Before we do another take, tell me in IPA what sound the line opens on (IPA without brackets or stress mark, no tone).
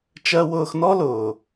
t͡ʃ